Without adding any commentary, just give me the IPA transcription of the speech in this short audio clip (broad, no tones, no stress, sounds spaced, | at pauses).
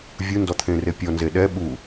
vʲ u n d ɔ t̪ʰ ẽ r e pʲ ɔ n z e ɗ ɛ ɓ u